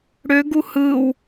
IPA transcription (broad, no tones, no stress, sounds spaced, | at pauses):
ɽ ø ɡ u h ɯ w